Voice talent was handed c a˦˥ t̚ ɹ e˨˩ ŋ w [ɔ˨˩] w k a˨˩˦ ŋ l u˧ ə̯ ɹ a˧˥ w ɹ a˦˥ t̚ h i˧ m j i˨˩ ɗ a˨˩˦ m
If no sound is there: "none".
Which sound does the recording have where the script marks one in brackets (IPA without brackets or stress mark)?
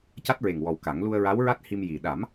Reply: ɔ˨˩